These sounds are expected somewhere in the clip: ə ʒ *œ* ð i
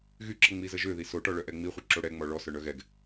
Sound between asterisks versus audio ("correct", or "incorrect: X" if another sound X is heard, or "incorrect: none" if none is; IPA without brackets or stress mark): incorrect: ø